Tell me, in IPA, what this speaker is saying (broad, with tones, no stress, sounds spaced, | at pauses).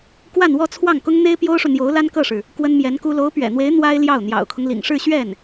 k w a˥˧ n w ɔ˥˧ t͡sʰ w ɑ˥˩ ŋ k ʊ˥ ŋ n̪ e˥ ɪ̯ p j o˥ ʊ̯ ʂ u˨ n̪ j o˧˥ ʊ̯ l a˥ n k ɤ˥˩ ʂ ɻ̩˩ | k w ə˥ n m j ɛ˧˥ n k u˥ l o˧˥ ʊ̯ p ɥ ɛ̰˨˩ n̪ w e˧˥ ɪ̯ n̪ w a˥ ɪ̯ l j ɑ˥˩ ʊ̯ n̪ j ɑ̰˨˩ ʊ̯ kʰ ʊ˦ ŋ l ḭ˨˩ ŋ ʂ ɻ̩˥˧ ɕ ɥ ɛ˥˩ n